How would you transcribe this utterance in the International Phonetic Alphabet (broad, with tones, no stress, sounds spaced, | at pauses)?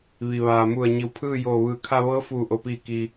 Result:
ʋ i˩ ʋ aː˩ m u˧˩ ə̯ ɲ i˩˧ w pʰ ɯː˥˨ j oː˧˩ ʋ ɯː˩ kʰ a˧ ʋ ɤː˧˥ f uː˧˩ ʔ o˩ p iː˧˩ k i˩